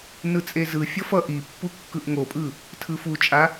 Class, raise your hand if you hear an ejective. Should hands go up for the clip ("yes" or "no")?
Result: yes